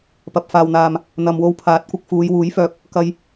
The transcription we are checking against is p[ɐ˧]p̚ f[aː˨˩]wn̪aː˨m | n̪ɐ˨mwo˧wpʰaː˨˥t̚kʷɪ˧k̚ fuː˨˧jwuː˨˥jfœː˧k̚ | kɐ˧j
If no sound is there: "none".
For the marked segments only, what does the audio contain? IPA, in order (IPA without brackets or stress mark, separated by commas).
ɐ˨, aː˨